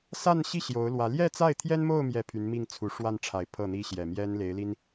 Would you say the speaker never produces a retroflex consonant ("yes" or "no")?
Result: no